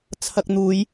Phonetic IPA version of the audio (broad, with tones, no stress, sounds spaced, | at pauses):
t͡sʰ ɐ˧ k̚ n̪ uː˨˧ j